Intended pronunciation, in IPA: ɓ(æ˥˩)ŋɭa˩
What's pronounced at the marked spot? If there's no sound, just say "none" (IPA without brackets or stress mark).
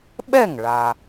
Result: ɛ˥˩